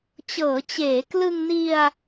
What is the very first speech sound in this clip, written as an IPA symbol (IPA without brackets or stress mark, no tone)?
t͡ɕ